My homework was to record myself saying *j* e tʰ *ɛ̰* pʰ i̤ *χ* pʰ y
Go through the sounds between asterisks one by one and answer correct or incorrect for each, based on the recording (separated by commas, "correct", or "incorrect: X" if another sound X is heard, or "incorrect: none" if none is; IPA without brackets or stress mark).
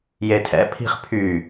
correct, correct, correct